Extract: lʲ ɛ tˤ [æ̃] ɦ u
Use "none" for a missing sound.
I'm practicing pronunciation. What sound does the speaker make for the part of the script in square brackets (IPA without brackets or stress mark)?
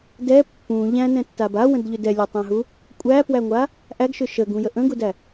æ̃